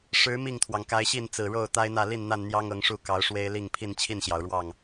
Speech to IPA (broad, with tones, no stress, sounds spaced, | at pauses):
ʂ ɻ̩˨˦ m i˥˨ ŋ t̪ʰ w ɑ˩ ŋ k a˨˦ ɪ̯ ɕ i˥˨ n t͡s ɹ̩˨˩ ɻ o˥˨ ʊ̯ t̪ a˦ ɪ̯ n̪ ä˥˨ l i˥˨ n n̪ a˥˨ n n̪ j ɑ˦ ŋ ɤ˨˦ ŋ ʂ u˥˨ k ɑ˨˦ ʊ̯ ʂ w e˦ ɪ̯ l i˥˨ ŋ pʰ i˥˨ n t͡ɕʰ i˥˨ n ɕ j ɑ˩ ʊ̯ ɻ w ɑ˥˨ ŋ